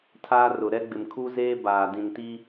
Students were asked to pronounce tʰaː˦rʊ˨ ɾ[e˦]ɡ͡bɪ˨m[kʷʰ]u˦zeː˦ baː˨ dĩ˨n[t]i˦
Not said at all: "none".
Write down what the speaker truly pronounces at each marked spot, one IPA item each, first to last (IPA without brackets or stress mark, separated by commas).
ɛ˦, kʰ, t